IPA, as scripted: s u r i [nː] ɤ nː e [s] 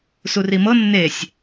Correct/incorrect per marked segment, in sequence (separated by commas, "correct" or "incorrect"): incorrect, incorrect